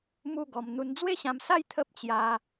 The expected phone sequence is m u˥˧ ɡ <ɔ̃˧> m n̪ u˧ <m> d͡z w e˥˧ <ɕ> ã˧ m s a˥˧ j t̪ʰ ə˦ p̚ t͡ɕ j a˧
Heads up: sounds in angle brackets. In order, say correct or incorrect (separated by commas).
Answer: incorrect, incorrect, correct